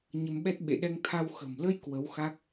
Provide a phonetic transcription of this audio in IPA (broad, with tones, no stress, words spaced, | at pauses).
ɲə˧mɓɛ˦˥t̚ ɓḛ˧˨ɗɛ˧ŋt̪ʰa˧w xə̤˨˩mlə˧j kwə˨˦wxa˦˥k̚